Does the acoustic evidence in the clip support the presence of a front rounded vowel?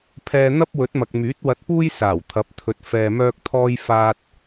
yes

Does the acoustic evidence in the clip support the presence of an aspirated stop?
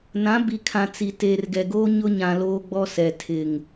yes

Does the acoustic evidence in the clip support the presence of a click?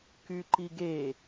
yes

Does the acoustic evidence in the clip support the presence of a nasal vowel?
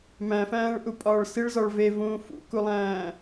yes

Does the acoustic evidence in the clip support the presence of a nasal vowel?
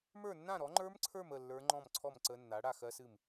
yes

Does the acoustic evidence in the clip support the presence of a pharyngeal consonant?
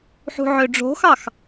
yes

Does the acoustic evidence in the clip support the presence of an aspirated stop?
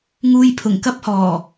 yes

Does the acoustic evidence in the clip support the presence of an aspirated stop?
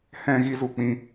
no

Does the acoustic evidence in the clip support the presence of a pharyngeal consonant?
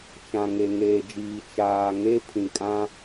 no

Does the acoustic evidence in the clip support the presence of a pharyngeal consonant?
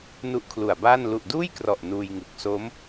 no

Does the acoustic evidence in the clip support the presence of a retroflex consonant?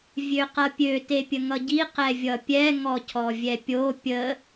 no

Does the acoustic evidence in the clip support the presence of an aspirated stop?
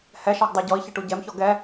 no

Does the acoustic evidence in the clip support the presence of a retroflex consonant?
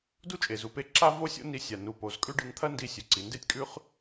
yes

